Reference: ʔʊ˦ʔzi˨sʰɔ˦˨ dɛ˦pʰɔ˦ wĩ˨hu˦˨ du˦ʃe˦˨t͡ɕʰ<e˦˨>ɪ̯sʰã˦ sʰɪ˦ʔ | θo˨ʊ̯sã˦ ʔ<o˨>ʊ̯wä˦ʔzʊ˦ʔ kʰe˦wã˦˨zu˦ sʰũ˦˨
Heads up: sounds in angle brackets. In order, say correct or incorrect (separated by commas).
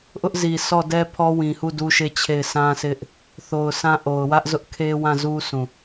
correct, correct